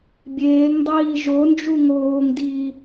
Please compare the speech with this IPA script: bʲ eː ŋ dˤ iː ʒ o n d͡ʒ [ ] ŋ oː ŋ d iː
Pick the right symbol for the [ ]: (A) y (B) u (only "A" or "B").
B